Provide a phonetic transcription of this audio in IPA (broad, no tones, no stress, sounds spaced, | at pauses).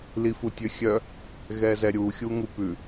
l i f u tʲ ø xʲ œ | ɣ ɛ z ɛ ɾʲ u xʲ u ŋ u p ʉ